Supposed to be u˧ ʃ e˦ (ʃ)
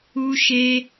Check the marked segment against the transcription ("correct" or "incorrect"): incorrect